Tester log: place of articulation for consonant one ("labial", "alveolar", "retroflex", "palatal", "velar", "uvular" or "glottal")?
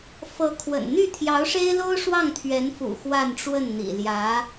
labial